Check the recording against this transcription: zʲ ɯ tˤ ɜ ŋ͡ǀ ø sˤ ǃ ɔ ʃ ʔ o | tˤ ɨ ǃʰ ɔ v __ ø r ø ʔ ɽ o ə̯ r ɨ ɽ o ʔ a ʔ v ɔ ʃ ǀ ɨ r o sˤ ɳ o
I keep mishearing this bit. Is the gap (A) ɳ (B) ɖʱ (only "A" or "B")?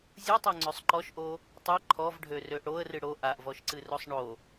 B